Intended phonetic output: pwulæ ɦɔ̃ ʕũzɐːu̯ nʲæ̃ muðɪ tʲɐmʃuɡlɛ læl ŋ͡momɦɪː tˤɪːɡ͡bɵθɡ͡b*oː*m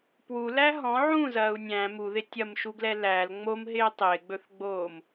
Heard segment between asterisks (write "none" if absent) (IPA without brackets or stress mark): oː